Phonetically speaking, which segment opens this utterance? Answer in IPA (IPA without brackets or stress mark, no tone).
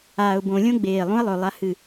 aː